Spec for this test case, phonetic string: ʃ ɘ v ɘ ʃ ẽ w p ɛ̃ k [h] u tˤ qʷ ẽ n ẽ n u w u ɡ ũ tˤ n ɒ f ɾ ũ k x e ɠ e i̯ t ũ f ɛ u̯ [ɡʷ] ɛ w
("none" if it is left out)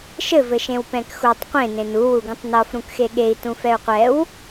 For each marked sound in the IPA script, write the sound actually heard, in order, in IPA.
x, qʷ

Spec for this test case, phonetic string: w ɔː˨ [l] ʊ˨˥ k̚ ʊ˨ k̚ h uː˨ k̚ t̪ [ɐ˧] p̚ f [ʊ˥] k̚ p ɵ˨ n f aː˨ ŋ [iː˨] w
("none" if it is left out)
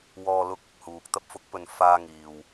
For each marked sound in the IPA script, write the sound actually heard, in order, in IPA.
l, ɐ˧, ʊ˨˥, iː˨

